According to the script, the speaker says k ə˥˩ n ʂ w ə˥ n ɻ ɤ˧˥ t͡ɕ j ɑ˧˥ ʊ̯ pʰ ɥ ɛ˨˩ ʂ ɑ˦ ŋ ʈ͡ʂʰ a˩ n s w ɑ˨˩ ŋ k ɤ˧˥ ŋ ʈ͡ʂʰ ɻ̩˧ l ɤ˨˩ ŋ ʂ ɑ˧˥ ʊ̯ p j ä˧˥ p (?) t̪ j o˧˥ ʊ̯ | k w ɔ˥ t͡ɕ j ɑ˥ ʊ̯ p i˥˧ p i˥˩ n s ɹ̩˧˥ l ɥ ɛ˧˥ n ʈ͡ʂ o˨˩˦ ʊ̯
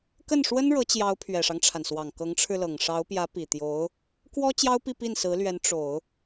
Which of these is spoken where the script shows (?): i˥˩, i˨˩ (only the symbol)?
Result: i˨˩